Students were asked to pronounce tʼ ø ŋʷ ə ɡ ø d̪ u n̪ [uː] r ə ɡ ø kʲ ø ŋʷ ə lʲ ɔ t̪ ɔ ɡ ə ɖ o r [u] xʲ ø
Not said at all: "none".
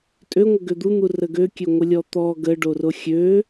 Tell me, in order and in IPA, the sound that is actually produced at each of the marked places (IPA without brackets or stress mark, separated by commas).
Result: u, o